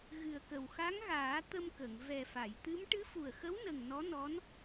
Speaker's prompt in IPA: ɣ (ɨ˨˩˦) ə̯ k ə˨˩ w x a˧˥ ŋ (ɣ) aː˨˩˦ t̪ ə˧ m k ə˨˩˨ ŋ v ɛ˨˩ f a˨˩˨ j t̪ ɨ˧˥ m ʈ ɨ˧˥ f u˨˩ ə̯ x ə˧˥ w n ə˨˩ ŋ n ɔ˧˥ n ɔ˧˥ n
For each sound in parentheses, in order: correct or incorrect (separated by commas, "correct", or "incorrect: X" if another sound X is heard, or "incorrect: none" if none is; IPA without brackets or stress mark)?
incorrect: ɨ˨˩, correct